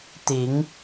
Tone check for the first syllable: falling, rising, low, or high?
rising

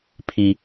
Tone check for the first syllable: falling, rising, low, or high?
low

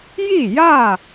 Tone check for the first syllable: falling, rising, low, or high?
falling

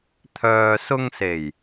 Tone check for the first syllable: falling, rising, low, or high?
low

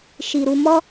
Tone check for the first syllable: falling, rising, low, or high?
low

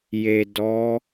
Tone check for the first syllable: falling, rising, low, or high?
low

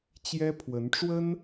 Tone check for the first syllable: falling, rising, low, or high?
high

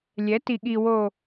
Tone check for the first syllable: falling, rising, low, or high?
rising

